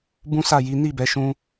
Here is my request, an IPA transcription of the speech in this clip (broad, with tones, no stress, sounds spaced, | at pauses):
b ũ˦ s a˦˨ j i˨˦ n i˦˨ b ɛ˨˦ ʃ ũ˦